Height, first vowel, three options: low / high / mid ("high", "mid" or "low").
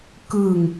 high